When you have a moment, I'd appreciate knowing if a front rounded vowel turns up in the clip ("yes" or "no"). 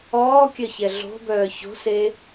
yes